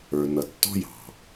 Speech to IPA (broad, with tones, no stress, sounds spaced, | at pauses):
ə˞˨ n ʌ˨ tː ɔ̤˦ j ɑ̤˨